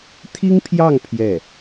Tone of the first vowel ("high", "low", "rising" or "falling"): high